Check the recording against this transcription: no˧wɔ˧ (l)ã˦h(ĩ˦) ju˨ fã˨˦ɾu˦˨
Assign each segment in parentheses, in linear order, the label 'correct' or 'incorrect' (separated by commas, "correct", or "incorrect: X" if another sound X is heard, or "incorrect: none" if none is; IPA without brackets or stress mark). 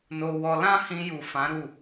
correct, incorrect: ĩ˧